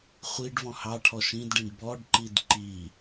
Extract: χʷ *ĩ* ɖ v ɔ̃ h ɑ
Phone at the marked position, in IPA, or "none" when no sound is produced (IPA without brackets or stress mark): i